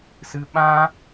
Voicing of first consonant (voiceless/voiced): voiceless